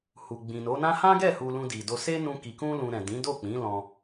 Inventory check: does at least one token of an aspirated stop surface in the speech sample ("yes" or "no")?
no